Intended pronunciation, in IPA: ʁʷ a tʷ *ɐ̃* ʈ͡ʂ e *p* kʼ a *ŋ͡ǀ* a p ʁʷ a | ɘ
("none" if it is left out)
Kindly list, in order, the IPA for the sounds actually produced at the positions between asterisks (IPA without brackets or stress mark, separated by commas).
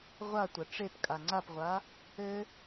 ɐ, p, ŋ͡ǀ